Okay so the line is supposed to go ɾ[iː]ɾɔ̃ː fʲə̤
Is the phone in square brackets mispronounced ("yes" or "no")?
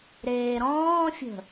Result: yes